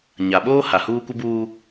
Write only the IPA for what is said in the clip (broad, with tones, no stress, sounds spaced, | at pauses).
ɲ a˨ ɓ oː˦ h a˨ h uː˦ kʷ ɪ˦ b uː˦